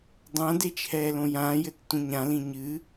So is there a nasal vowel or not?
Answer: yes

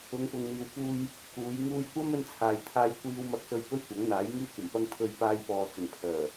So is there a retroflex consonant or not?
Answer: no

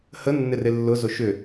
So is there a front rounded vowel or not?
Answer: yes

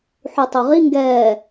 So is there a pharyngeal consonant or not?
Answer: yes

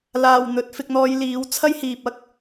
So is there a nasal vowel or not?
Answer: no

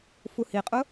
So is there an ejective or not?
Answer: yes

